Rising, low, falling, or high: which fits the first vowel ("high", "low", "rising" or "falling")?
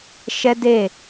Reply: high